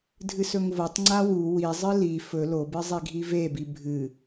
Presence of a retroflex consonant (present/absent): absent